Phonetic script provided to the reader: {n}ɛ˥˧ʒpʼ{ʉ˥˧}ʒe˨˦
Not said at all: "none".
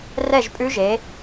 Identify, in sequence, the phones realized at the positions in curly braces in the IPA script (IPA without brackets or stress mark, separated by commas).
r, ʉ˦˥